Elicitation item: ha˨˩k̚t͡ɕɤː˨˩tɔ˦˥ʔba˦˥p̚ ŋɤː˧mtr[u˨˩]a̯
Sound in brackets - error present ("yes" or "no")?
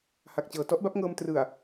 yes